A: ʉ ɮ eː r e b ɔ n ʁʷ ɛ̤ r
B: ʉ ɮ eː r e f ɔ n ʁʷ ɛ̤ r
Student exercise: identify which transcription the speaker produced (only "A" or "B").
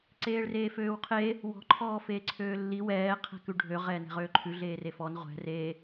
B